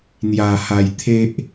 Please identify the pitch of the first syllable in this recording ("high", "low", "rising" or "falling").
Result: low